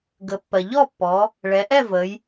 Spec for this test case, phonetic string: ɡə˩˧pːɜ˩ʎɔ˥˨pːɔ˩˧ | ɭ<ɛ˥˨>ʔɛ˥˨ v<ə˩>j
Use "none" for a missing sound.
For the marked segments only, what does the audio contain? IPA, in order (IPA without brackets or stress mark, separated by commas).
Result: ɛ˩˧, ə˩˧